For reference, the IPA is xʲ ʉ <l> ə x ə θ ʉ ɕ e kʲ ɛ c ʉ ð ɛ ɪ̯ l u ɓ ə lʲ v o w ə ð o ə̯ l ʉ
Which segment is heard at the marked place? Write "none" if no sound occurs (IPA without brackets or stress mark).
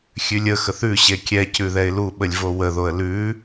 lʲ